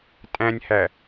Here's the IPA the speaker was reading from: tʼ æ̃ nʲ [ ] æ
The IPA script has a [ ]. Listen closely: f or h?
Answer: h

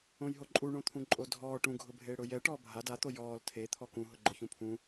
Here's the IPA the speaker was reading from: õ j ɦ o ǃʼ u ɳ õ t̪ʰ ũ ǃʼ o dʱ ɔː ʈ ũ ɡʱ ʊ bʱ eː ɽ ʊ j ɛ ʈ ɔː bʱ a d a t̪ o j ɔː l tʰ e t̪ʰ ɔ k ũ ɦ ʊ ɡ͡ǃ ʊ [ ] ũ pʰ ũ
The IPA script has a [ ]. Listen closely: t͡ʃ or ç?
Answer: ç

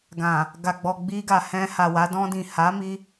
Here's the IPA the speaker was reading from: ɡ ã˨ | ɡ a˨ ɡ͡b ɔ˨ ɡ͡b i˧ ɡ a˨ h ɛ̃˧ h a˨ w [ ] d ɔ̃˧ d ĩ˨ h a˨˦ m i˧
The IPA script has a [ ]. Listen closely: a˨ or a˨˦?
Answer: a˨˦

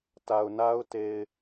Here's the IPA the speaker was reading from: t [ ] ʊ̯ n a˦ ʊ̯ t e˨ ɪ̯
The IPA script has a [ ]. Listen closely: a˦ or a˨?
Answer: a˨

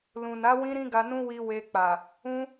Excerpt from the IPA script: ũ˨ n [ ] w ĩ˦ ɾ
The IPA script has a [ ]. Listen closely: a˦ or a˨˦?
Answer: a˨˦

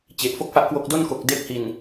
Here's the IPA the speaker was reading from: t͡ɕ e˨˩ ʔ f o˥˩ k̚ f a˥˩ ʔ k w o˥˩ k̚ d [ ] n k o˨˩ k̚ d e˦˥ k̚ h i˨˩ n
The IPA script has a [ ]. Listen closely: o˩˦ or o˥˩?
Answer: o˥˩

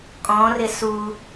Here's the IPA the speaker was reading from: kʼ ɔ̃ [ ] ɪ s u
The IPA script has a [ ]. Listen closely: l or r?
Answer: r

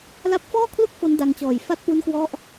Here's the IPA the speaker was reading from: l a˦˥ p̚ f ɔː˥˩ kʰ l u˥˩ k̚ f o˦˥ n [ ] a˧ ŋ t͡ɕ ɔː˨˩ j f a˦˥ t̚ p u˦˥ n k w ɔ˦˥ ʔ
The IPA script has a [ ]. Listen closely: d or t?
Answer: d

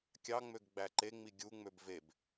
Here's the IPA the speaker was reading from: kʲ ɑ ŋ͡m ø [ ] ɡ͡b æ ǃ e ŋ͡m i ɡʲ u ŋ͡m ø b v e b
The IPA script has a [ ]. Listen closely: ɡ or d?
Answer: ɡ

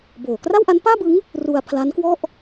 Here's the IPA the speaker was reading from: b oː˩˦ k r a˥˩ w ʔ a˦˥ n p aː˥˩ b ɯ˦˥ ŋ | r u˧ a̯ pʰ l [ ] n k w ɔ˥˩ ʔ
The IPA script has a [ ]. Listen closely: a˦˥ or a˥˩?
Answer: a˦˥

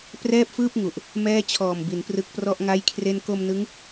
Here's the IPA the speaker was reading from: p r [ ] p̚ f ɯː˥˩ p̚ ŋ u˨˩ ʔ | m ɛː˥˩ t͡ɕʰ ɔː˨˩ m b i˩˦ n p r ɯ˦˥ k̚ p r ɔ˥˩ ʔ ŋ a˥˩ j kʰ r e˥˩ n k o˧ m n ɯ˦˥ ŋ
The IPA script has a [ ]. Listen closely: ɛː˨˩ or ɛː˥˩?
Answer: ɛː˥˩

